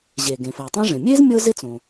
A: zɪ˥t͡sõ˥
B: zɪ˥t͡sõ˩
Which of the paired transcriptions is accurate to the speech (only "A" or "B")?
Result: B